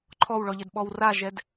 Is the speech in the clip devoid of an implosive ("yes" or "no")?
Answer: no